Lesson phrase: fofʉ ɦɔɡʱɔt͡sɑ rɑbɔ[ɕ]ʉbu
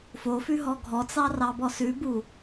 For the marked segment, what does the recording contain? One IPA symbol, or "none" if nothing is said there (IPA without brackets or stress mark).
s